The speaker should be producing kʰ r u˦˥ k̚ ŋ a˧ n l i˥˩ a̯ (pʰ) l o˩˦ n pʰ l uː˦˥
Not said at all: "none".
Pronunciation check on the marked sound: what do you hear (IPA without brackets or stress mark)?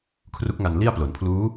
p